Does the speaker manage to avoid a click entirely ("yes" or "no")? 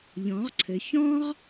no